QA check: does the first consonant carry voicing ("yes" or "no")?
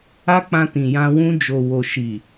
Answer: no